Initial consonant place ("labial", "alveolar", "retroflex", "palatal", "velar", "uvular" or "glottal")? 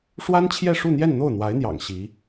retroflex